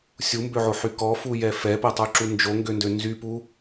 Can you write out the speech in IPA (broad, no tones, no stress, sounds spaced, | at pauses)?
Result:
sʲ u m b ø ʕ o ħ y k ɔ f u j ɛ f ɛ p ɛ tˤ y ǁ u n d͡ʒ o ŋ ɡ ø n d ø n z y p u